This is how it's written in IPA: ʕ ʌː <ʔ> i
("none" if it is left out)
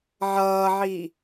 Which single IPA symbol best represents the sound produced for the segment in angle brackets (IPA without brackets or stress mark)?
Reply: ʕ